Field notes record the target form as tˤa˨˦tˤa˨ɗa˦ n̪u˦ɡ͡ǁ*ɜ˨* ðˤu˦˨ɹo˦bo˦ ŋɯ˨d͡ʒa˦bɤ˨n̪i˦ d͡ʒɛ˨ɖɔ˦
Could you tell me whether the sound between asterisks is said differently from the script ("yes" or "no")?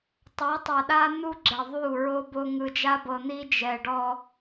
yes